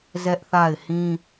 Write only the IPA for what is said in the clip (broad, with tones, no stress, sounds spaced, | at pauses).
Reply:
z ɛ˦ ʔ θ a˦˨ ɪ̯ h ĩ˦